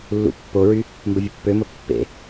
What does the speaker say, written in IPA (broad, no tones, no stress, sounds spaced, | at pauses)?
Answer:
lː ṵ pː o ɹ y | m b ə vʲ ə pː ø m ə pː ḛ